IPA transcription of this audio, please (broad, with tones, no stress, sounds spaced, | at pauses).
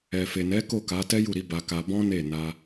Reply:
ɛ˨ f e˨ n ɛ˨˦ k o˦˨ k a˨˦ t ɛ˦ j u˦˨ ɾ i˨˦ b a˧ k a˧ b ɔ̃˦ n e˦˨ n a˧